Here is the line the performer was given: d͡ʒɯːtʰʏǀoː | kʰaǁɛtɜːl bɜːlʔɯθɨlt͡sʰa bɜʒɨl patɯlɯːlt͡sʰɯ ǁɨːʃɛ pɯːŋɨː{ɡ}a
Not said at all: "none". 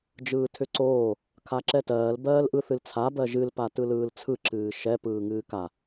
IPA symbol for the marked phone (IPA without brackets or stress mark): k